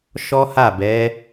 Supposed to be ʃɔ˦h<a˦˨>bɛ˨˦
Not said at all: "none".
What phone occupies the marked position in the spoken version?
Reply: a˦˨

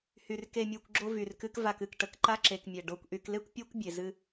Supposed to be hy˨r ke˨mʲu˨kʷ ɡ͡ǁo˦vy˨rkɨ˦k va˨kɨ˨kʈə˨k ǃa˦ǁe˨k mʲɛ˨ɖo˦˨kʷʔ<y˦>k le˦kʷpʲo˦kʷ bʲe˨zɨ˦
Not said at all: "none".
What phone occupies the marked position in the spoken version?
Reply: y˦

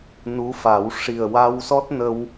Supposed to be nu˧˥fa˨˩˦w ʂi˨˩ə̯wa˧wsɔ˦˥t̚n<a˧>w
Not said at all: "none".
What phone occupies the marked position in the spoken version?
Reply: ə˧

